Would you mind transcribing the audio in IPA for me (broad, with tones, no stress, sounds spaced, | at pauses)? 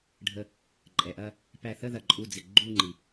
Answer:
ɖʱ ə˧˩ | ǃʼ ɛ˩ ʔ ɐ˥˧ | p æ˧˩ θ ə˥˧ ð ɐ˩ ǃʼ u˧˩ d͡z ɪ˩ ɡ͡ǃ u˥˧ ŋ͡ǃ i˩